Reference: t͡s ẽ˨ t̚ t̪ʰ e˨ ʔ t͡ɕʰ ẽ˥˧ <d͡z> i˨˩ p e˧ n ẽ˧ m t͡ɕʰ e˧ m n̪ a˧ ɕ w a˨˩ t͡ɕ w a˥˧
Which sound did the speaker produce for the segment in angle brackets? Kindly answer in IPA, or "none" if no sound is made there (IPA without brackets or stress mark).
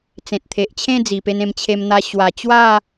d͡z